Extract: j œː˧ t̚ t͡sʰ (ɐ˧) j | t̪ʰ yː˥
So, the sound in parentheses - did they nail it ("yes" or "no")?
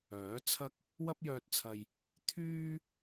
yes